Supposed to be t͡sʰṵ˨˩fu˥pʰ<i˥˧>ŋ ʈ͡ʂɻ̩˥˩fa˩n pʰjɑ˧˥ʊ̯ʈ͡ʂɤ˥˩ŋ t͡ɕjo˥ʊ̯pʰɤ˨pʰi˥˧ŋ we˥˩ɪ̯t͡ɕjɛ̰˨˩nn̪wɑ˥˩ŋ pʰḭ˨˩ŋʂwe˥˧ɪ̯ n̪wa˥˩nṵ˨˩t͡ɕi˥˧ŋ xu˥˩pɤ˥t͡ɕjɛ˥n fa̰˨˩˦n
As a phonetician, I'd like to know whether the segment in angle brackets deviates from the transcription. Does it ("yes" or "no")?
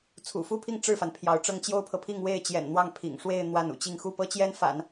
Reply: no